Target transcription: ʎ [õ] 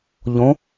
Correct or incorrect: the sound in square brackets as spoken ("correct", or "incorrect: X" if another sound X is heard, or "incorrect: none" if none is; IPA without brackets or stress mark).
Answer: correct